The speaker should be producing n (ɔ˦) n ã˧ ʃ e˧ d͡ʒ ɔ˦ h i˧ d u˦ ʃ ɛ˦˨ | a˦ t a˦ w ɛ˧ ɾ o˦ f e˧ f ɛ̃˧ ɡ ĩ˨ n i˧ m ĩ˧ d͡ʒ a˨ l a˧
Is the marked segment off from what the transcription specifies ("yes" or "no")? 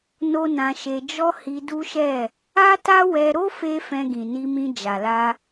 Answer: yes